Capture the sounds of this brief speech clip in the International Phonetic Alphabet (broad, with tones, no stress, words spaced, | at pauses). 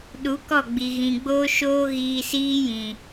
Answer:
ɗu˨˦kɔ˦˨ɡ͡bi˨ ɣĩ˨ɡ͡boː˦ʃoː˦ ɣiː˧siː˦jĩ˨